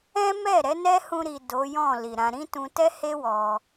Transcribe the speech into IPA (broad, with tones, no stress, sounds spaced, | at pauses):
ɛ̃˦ m ɛ˦˨ ɾ ɛ˨˦ n ɛ˦ h ũ˧ ɾ i˨ d o˨˦ j ɔ̃˦˨ l i˨ ɾ ã˧ ɾ ĩ˦ t ũ˧ t ɛ˦ h e˦ w ɔ˧